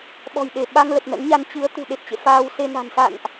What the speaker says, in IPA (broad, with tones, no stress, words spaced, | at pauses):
ɓɔ̤˨˩jɗe˧˩ ɓa˧ŋ lə˨˩p̚nə̰˧˥nɲa˧n t͡ɕɨ˨˦ə̯ t̪ṳ˨˩ɗe˨˩p̚t͡ɕḛ˧˨ faː˧wse˧na̤˨˩n sa̰˧˨nʔ